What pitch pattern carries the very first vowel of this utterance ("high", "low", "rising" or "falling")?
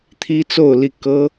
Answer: high